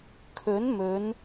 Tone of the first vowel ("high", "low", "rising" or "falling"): rising